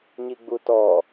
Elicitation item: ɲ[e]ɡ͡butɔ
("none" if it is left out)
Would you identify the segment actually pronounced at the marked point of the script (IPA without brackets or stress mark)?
i